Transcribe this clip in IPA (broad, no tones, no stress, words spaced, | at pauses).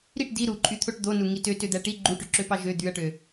ɾiʈ di ɾuǃʼyt̪ʰoʈ d̪onu ŋitø tød̪æʈi ɡ͡ǃuʈyǁøpɑ ʒø d̪yɐ̯ʈø